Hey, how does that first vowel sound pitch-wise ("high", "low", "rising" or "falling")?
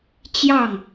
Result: falling